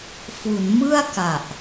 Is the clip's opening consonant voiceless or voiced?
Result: voiceless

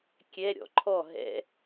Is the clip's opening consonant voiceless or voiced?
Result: voiceless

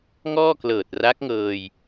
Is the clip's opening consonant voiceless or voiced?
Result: voiced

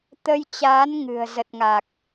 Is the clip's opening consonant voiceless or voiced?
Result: voiceless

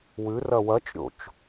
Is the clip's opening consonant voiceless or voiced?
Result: voiced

